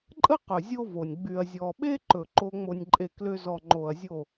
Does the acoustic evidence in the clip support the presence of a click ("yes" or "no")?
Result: yes